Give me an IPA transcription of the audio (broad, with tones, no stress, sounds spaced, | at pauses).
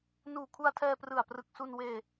n uː˨˩ kʰ u˧ a̯ tʰ ɛː˧ p r ɯ˨˩ a̯ p r ɯ˨˩ k̚ s u˧ n w eː˧